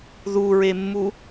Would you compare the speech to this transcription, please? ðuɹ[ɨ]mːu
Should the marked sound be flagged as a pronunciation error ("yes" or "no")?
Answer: yes